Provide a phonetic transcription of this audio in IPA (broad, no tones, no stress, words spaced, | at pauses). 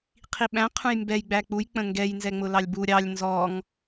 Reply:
qʰiɓæ̃ qʰũjmbɛj ɡ͡bæk͡puj k͡pə̃ŋɡɛj nzɛŋ͡mʊlɑlʲbu ɾʲɑlʲ nzɔŋ